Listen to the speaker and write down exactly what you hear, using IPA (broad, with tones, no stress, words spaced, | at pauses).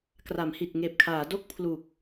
kra˩˦mhi˨˩t̚ ŋeː˨˩p̚kʰaː˩˦do˥˩k̚ pʰlu˨˩k̚